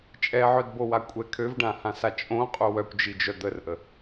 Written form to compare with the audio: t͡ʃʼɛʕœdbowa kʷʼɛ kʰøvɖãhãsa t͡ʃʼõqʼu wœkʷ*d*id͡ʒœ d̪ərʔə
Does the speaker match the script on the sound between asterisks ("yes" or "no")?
no